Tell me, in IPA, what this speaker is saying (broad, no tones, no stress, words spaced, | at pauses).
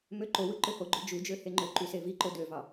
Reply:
møǃowɯ ǃøhoɡ͡ǃø d͡ʒud͡ʒø heŋ͡ǃøǃy seviǃo døvɑ